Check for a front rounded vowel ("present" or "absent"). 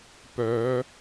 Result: present